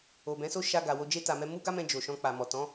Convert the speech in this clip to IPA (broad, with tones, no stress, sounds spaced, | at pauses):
o˨ b ɛ̃˨˦ s o˦ ʃ a˧ ɡ a˨ w o˧ d͡ʒ e˦ t a˧ m ɛ˦ m u˦ ɡ a˦ m ɛ̃˧ d͡ʒ o˨ ʃ ɔ̃˧ k͡p a˨ m ɔ˨ t ɔ̃˨˦